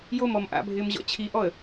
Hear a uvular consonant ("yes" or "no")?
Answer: no